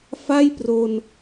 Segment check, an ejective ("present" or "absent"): absent